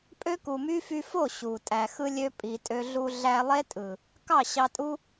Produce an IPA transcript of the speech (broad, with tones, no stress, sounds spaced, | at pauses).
pʼ ø˦ k u˨ m y˦ f y˧ f o˦˨ ɕ u˨ tʼ æ˨ x ɯ˦ lʲ ø˦ pʼ i˨ tʼ ø˧ ɮ u˧ ɮ æ˧ lˠ e˦ tʼ ɯ˨ | k ɑ˦˨ ɕ ɑ˧ tʼ u˦